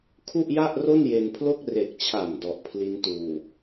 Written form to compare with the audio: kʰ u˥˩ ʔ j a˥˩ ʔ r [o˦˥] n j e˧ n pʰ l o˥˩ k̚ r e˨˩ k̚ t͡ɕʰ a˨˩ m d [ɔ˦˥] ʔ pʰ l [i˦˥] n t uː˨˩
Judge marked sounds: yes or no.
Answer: no, no, yes

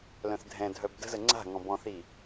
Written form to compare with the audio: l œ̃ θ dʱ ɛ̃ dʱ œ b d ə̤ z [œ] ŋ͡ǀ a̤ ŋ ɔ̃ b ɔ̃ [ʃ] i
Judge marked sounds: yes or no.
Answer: no, no

